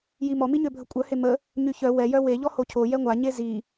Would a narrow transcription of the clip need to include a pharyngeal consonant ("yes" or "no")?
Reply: no